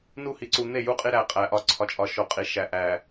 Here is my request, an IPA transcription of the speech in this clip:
n u˦ h i˨ ǀ u˨ n̪ e˦˨ j u˦˨ qʼ i˦ ɾ æ˦ qʼ æ˨ ʔ ɒ˨ ǀʰ ɒ˨ t͡ʃʼ ɒ˨ ʃ o˨ qʼ i˨ ʃ æ˨ ʔ æ˨

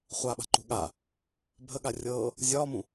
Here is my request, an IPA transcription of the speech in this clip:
χʷ a ɓ a̤ ǃ ṳ ɠ a | bʱ ə ɠ a rʲ ɤː | zʲ ɒː m ũ

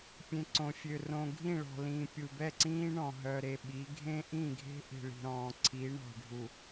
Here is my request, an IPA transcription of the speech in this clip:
pʲ ẽ˨ ǀ õ˨ fʲ ø˨ r õ˨ ɡʱ ĩ˦˨ ɭ ɔ̤˨ l ĩː˨ pʲ u˨ b ɛ˦˨ ǀ ĩː˦ ɳ ɔ̃˨ ɦ œ˨ ɾ e˨ ɓ i˨˦ ɡʱ ẽ˦ ʔ ĩ˦˨ ɡʱ e̤˦ ʔ i̤˨ ɭ i̤˨ ɾ ɔ̃ː˨ ǀʰ i˨˦ ɳ ɔ̤˨ ɖʱ u˨

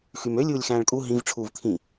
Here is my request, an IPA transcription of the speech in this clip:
x y m ø lʲ uː lʲ x æ̃ː ɭ kʼ u ɦ ĩ v ʈ͡ʂʰ uː v t̪ʰ ĩ

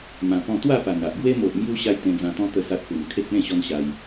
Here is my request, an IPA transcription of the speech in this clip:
m ã˧ p ɔ̃˥˧ t̪ w a˥˧ p a˨˩ n a˨ ʔ ɡ w e˧ m o˨ ʔ m j u˧ ɕ a˦ j t̪ ẽ˧ d͡z ã˧ t̪ ɔ̃˦ t̪ ə˧ s a˦ t̚ p u˨˩ m kʰ e˦ k̚ l ẽ˥˧ ɕ ɔ˦ n ɕ a˧ j

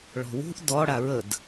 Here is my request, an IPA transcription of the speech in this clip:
ɭ ɔ̤ w ṳ ʔ d ɔ ɽ a ɹ ə d

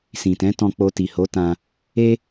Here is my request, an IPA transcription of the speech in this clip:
s ĩ˨ t ɛ̃˨˦ t ɔ̃˧ k͡p o˧ t i˨ h o˨˦ t ã˧ | e˦

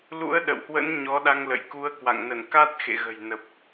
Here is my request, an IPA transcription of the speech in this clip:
l ṵ˧˥ ə̯ ɗ ə̰˧˨ w h w ə̰˧˥ n ɲ ɔ˨˦ ɗ a˧ ŋ l ə̰˧˨ j k u˧ ə̯ k w a̰˧˨ ŋ n ə˧˩ n k a˦˥ t̚ x ḛ˧˨ ɣ ə̤˨˩ j n ə˨˩ p̚

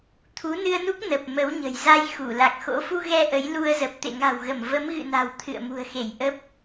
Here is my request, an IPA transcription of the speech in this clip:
t̪ʰ u˨˦ n ɨ˧ ə̯ n u˦˥ k̚ n ə˨˩ p̚ m ə˨˦ w ɲ ə̤˨˩ j z a˧ j x u˧˩ l a˨˩ k̚ x o̰˧˥ f u˧ ɣ ɛ˧ ʔ ə˨˦ j l u˧ ə̯ z ə˨˩ p̚ t̪ ḛ˧˨ ŋ a̤˨˩ w ɣ ə˧˩ m v ə˨˦ m ɣ ɨ̰˧˨ n a̤˨˩ w t̪ʰ ɨ̰˧˨ ə̯ m ṳ˨˩ ə̯ x e˧˩ j ʔ ə˦˥ p̚

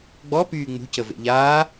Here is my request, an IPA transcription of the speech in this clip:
ɡ͡b ɔ p yː ŋ͡m ṳ c ə v ḛ ʎ aː

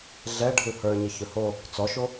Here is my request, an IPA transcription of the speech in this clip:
ɮ ɛ ɖʱ ɯ h ə˞ ɲ ɪ ç ɵ h o | t͡s ɔ ʃ o

